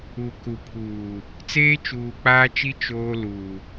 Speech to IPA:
u˨ k u˨ pʰ uː˨ | t͡s eː˦ t͡ʃ uː˨ k͡p aː˦ t͡ʃ i˦ t͡ʃ oː˦ l uː˨

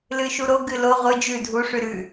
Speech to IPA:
l ɨ ʃ u ɾ o ɡ ɨ l o ʁʷ ɨ d͡ʒ ʉ dʱ u ʂ ʉ ɾ ʉ

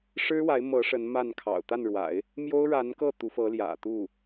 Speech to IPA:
ʂ ɻ̩˥ w a˧˥ ɪ̯ m ɤ˧˥ ʂ ə˧˥ n m a˥˩ n kʰ ɑ̰˨˩ ʊ̯ t̪ a˥˩ n ɻ w a̰˨˩˦ ɪ̯ | m j o˥ ʊ̯ ɻ a˧˥ n k ɤ˥˩ t̪ u˧˥ f ɤ˧˥ l j ä̰˨˩ t̪ u˥˩

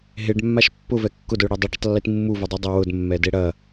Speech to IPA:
ɦ e ɖ mː a ʃ pː ʊ v ɛ kː ʊ d ʊ y̯ ɽ e dˤ ɐ ɖ ʊ tˤ lː i t mː u v ʊ dˤ i dˤ ɐ w ʊ d mː ɛ d e ɽ ɐ

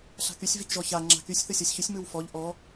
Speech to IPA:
ɬ a̤ k y sʲ v i k ʒ ɔ ç a ŋ͡ǁ a̤ k y sʲ θ ɯ sʲ ɔ sʲ ç y sʲ m ɯ w f ɔ ʎ ʔ ɔ

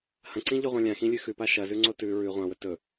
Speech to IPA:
h ɐ̃ ǀ ĩ ʎ ɵ ʁʷ ã lʲ ã x ĩ lʲ ʉ x ʉ p a ʃ ɐ z ʉ ŋ͡ǀ o t ʉ ɹ ʉ ʁʷ ã w ɵ t ɵ

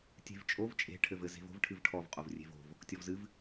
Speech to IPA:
tʲ e̤ v t͡ʃʼ o v t͡ʃʼ e̤ ʈʰ ɘ v ɘ z e̤ v o̤ v ʈʰ ɨ v ʈʰ ɔ v qʼ o v rʲ e̤ v o̤ v | tʲ ɔ v z ɨ v

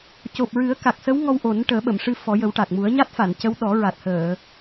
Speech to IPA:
c o˨˩ p̚ ɹ ɨ˨˩˦ ə̯ k a˨˩ k̚ s ə˧˥ w ŋ ɔ˧ w ʔ o˨˩˦ n ʈ əː˨˩˦ ɓ ə˨˩˨ m ʂ ɨ˧ f ɔ˨˩˦ j ə˨˩˦ w ʈ a˨˩ k̚ m u˨˩˦ ə̯ ɲ a˦˥ t̚ f a˨˩˨ n c ə˧˥ w ɗ ɔ˨˩˦ ɹ a˨˩ t̚ h əː˨˩˨

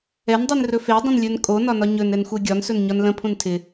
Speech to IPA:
ɛ n dˤ i n r ɵ f e dˤ ə̃ n lʲ ɵ n kʼ o n ɒ n ɒ ɲ ɵ n ɛ n xʷ ɛ ɡʲ ɒ n s ɵ n ɲ ɒ n l ə̃ pʰ ũ n tʰ ɪ

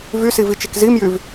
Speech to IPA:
v y s i v i t͡ʃ e k z i m j y v

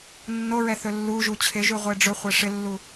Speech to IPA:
nː o ɹ ɛ θ ɵ lː u ʒ u t͡ɕʰ ɪ ʒ ʉ ʁʷ e ɖ͡ʐ ɵ χʷ e ʂ ɪ lː u

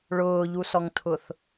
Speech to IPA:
ɭ ʊː ʎ u s ɔ ŋ tʰ ʊ θ

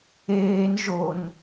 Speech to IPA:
eː n ʒ o n

